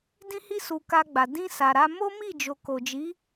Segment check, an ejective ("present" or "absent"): absent